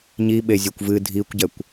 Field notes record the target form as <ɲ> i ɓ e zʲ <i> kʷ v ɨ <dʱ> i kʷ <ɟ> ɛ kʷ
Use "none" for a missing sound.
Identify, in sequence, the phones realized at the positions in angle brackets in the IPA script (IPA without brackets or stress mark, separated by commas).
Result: ɲ, e, dʱ, ɟ